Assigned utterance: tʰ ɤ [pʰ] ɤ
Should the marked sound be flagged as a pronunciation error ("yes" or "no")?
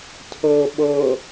yes